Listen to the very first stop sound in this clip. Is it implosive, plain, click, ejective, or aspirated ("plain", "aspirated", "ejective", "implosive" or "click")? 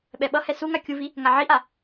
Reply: implosive